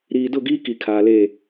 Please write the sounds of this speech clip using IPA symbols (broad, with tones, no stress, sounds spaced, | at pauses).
ɾ iː˨ d ʊ˦˨ ɡ iː˦ k i˨ kʰ aː˨ l eː˦˨